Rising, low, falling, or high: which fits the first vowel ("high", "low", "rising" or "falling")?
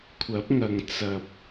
rising